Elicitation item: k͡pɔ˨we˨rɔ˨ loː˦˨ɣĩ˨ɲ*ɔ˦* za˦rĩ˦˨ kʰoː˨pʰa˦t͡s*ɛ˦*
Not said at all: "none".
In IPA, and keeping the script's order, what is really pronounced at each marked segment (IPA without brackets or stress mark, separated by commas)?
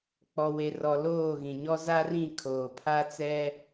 ɔ˦, ɛ˦